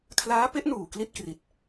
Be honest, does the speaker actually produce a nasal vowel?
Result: no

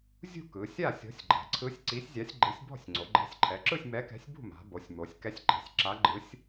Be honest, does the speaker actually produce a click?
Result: yes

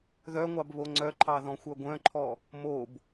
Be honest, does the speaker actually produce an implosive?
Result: no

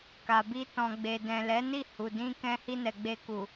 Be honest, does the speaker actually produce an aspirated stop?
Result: no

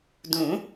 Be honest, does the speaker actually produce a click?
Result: no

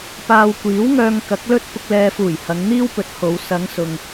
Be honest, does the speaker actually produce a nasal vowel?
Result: no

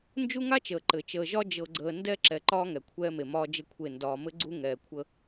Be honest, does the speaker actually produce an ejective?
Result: no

